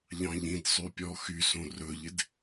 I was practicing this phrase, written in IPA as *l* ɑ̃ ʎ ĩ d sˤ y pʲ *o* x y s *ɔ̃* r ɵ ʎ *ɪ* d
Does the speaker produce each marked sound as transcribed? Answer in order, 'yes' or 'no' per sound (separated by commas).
no, no, no, yes